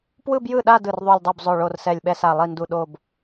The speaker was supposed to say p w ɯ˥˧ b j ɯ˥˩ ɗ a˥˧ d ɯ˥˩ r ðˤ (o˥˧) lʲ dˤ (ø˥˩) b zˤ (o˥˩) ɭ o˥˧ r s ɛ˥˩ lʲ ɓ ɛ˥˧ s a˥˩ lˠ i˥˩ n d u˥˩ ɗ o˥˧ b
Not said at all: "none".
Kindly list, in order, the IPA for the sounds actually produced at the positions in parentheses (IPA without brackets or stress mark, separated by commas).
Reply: o˥˧, u˥˩, o˥˩